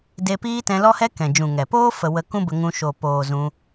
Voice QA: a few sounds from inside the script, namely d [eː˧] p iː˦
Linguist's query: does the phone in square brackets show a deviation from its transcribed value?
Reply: yes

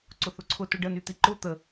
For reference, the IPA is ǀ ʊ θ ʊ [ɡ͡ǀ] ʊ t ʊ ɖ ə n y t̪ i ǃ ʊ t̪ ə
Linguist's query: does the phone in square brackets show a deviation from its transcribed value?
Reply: yes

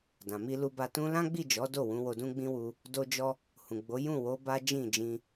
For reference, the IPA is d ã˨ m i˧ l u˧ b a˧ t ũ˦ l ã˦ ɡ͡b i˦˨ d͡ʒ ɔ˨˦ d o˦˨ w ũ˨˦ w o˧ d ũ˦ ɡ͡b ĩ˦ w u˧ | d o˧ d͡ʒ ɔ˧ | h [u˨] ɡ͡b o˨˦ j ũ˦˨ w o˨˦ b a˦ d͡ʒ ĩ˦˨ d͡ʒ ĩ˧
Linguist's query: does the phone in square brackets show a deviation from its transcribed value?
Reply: yes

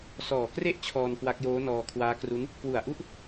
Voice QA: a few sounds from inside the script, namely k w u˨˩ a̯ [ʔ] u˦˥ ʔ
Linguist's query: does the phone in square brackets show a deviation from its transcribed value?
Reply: no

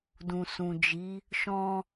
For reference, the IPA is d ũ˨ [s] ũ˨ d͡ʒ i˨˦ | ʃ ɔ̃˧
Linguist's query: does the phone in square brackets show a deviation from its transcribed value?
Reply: no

